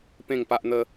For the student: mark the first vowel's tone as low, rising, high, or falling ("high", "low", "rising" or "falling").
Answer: falling